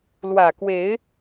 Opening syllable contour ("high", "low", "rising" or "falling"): low